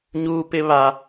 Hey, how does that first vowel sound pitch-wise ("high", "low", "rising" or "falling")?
high